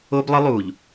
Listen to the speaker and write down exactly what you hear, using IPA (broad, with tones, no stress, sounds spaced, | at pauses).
o˦ b lˠ ɨ˦ lˠ uː˨ ʎ